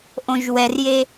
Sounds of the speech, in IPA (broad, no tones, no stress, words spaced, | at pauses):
ʔõʒwɛrje